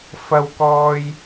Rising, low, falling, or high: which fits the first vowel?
high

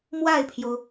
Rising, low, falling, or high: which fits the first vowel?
falling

